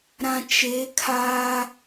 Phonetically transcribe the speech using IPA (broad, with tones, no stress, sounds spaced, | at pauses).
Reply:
ɾ ã˨ t͡ʃ e˨˦ kʰ aː˦